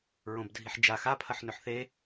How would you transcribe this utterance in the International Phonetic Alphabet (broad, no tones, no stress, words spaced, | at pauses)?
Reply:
ɹõbdʱiħd͡ʒa xapʰɐħnɵħ θe